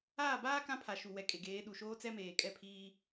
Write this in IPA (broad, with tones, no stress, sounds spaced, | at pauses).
aː˦˨ b aː˦ k ã˦ pʰ a˨ ʃ u˨ w ɛ˨ kʼ e˨ ɡ eː˨˦ ɗ u˨ ʃ oː˦ t͡s ɛ˦ m eː˨ kʼ ɛ˦˨ pʰ iː˦